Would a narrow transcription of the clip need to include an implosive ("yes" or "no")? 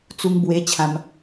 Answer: no